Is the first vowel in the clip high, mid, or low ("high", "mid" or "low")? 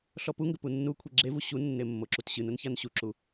mid